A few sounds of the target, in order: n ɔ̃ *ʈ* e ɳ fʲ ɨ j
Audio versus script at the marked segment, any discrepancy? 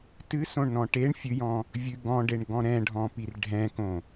no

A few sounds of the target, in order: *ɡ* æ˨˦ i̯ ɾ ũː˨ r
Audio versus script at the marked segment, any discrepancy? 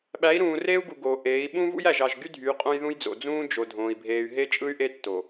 yes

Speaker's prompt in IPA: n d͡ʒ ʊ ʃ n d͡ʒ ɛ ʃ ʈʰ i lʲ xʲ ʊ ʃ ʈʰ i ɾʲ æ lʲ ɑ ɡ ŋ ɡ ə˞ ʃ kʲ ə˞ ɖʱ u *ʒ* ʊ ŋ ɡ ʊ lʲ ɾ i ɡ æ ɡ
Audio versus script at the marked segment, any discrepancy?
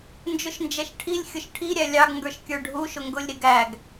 yes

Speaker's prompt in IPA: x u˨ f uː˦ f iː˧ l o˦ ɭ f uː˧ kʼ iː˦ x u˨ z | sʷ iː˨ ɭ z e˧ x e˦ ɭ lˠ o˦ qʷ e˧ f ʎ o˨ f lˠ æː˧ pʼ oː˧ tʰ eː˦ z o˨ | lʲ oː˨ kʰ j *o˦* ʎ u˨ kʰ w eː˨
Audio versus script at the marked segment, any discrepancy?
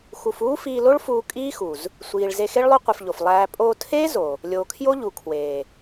no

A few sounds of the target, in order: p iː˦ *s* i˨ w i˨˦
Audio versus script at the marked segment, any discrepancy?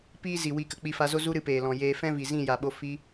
yes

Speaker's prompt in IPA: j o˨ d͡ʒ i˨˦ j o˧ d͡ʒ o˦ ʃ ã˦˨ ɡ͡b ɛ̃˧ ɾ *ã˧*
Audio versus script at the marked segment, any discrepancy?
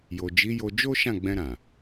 yes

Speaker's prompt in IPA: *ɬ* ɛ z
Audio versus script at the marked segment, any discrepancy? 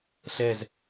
no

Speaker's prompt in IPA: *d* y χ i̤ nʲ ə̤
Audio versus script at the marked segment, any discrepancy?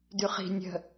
no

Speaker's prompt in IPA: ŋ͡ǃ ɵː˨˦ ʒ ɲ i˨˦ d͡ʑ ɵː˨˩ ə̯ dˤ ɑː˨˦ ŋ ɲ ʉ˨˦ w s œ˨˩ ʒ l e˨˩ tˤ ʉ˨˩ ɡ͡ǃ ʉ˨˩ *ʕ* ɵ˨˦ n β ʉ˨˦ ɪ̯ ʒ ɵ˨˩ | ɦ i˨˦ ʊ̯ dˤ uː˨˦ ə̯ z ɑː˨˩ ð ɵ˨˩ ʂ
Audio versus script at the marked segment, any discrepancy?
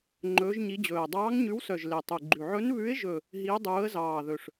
no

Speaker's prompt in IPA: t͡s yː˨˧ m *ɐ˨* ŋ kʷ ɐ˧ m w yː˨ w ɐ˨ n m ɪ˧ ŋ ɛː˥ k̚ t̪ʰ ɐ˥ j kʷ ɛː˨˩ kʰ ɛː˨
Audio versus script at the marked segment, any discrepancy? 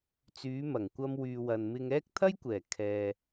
yes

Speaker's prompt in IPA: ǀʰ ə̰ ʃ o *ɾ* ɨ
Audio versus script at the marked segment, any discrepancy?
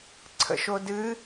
yes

